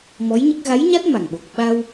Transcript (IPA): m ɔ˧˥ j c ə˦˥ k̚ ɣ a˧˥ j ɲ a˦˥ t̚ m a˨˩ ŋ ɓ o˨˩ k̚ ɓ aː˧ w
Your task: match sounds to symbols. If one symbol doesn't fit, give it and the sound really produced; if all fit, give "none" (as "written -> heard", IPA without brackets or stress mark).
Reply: c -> ɲ